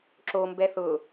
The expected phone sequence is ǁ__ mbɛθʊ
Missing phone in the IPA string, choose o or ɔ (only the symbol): o